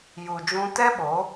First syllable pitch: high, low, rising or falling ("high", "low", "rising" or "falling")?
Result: low